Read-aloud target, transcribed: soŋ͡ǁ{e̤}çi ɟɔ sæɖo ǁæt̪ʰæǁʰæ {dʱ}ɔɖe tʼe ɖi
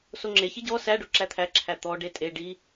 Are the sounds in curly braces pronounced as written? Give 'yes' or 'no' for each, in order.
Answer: no, no

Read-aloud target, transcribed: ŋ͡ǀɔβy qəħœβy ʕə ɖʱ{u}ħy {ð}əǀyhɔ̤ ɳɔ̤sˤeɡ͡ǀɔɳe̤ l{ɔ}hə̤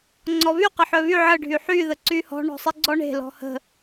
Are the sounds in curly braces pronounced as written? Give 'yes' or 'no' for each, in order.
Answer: no, yes, no

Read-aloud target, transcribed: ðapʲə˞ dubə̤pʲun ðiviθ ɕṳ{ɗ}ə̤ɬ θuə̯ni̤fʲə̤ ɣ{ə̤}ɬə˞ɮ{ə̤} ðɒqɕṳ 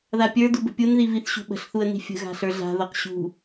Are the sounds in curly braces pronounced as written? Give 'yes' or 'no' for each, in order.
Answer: no, no, no

